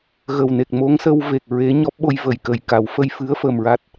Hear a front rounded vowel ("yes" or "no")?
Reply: no